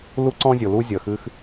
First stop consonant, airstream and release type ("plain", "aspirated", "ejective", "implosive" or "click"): click